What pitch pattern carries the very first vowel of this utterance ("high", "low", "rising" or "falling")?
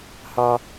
high